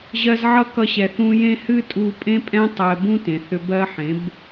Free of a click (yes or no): yes